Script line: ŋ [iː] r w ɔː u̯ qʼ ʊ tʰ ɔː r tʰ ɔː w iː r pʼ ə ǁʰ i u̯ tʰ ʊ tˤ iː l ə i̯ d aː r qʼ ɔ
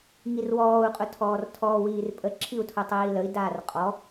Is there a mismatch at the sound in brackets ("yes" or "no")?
yes